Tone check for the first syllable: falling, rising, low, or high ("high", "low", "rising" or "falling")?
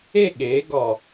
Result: falling